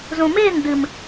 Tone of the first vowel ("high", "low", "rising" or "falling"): low